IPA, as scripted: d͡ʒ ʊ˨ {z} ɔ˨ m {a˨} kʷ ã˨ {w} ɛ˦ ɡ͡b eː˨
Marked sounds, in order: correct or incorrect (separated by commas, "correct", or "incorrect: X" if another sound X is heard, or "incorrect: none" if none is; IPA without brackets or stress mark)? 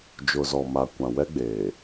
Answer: correct, correct, correct